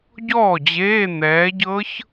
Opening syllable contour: falling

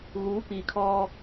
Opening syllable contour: rising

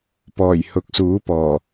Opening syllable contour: low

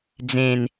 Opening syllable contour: low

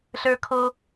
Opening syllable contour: high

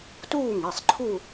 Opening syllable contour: falling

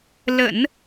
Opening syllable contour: low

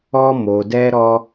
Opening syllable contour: high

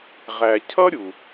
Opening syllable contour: low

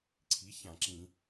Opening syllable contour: rising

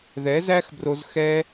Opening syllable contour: rising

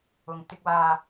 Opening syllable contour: low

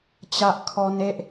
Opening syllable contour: high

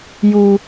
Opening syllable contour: low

